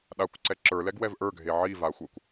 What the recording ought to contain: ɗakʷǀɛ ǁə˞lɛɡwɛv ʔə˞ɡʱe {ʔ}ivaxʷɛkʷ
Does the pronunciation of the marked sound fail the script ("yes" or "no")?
yes